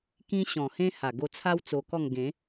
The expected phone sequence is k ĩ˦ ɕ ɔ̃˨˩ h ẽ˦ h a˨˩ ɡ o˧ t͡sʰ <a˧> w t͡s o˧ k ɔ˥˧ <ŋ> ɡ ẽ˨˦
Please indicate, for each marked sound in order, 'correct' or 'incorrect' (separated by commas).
incorrect, correct